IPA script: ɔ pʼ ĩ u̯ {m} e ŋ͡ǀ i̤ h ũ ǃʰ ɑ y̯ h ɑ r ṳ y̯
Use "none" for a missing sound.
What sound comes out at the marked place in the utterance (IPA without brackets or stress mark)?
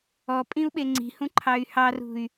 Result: ɓ